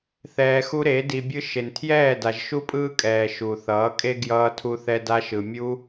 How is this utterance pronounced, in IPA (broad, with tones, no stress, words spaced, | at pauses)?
θɛː˧xu˦ɾe˨˦ di˧bʲɯ˦ ʃe˨ntʰjɛː˦˨da˨ʒ ʃu˦pʼɯː˦kʼɛː˨ ʃu˨θʌː˨˦kʼe˦ ɡjʌː˧tʰu˧θɛ˧ da˧ʃɯ˨ mʲu˦